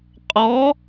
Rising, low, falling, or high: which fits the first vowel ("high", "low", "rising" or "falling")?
rising